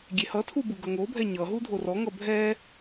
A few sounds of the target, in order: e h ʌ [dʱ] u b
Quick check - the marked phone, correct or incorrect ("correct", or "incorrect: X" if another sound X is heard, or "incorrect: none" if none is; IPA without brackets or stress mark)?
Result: incorrect: tʰ